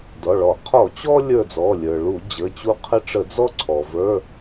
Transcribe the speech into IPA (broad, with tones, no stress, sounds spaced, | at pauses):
d ɔ˩˧˩ ɭ ɔ˧˩˧ qʰ ɔ˧˩˧ t͡ɕ ɔ˦ lʲ ə˞˦˨ d͡z ɔ˩˧˩ lʲ ə˞˩ ɭ u˧˩˧ d͡ʑ ə˩˧˩ t͡ɕ u˦ qʰ ə˦˨ ʈ͡ʂ ə˧˩˧ d͡z ɔ˦ ǀʰ ɔ˩ v ə˞˩˧˩